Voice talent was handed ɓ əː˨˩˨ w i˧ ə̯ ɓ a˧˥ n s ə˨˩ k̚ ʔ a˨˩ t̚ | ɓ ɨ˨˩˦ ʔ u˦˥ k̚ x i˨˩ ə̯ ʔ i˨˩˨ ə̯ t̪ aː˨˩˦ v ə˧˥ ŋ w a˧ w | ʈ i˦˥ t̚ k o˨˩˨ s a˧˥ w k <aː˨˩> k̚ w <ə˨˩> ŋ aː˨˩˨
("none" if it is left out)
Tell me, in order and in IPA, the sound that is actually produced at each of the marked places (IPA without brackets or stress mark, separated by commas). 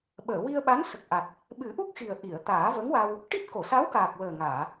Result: aː˨˩, əː˨˩